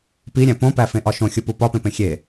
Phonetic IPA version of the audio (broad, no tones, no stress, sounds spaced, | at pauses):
p i ɾʲ æ̃ p õ p æ f ẽ ʔ ɒ ʃ õ xʲ u p u p ɒ p ẽ p ẽ xʲ e